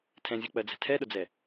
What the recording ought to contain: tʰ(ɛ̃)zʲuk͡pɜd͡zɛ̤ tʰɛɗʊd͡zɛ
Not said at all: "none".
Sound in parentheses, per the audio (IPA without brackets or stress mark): ɛ̃